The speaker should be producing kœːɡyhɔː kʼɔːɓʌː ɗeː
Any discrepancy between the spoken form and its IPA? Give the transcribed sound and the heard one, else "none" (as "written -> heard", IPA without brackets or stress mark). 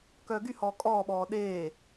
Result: ʌː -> ɔː